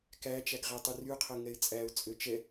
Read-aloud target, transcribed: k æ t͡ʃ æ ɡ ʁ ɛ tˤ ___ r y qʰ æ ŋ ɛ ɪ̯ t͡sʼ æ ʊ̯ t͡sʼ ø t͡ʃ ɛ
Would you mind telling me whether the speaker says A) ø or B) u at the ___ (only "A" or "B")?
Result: B